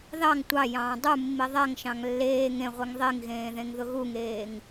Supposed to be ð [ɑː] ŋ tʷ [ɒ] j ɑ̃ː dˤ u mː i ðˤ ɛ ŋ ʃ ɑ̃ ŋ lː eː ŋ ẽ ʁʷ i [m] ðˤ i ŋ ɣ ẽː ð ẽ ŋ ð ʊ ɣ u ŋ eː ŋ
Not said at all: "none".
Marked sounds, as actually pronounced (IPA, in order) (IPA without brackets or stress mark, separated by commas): ɑ, ɑ, ŋ